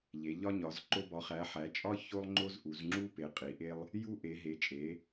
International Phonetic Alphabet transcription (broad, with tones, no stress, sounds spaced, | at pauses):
ʎ e˨˦ ʎ ɒ˥ ɲ ɒ˨˦ z ǃ o˥ b ɒ˨˦ χ æ˨˦ ħ æ˨˦ t͡ʃʼ ɒ˥ ç o˥ lˠ ŋ͡ǃ o˥ z ʔ u˨˦ z ŋ͡ǁ u˥ p e˨˦ qʼ i˨˦ ʔ e˥ lˠ | j u˥ ʔ e˨˦ ɦ e˨˦ t͡ʃʼ e˨˦